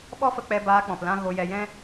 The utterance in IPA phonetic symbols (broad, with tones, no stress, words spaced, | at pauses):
ɓɔ˦fə˧k͡pɛ˧ baː˧k͡pɔ̃˨plã˧ ɣo˧ jɛ˧jɛ̃˦